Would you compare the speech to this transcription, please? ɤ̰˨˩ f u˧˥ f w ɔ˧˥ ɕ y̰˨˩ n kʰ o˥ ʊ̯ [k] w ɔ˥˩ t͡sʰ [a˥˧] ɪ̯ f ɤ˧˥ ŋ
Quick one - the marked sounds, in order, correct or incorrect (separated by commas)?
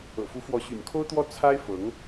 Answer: incorrect, incorrect